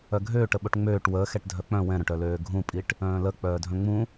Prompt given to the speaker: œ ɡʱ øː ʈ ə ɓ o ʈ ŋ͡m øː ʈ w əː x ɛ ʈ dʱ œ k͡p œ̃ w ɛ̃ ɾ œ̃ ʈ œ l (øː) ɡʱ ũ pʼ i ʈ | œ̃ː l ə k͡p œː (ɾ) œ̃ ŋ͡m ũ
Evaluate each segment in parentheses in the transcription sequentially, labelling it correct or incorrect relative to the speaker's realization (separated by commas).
correct, incorrect